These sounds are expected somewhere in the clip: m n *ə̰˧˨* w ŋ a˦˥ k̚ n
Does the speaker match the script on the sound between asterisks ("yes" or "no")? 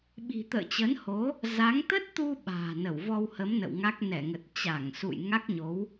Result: yes